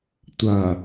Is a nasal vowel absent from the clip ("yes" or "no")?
yes